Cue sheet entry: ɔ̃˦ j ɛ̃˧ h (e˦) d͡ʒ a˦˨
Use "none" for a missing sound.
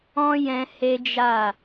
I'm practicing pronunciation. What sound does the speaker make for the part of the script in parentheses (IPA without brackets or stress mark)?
e˦